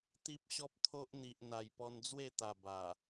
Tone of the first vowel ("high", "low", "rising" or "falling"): high